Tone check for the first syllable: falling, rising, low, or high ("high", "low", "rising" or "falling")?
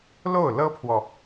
falling